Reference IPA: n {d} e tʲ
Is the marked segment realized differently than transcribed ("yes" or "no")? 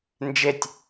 yes